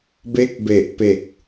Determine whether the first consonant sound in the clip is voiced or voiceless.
voiced